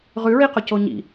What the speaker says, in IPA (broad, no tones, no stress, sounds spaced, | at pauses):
ʁ ʉ ɹ i q o c o ɲ ḭ